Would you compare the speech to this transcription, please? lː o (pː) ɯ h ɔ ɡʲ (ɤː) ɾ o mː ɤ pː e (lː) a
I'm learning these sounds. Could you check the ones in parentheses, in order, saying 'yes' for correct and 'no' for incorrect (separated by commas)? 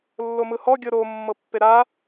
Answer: no, no, no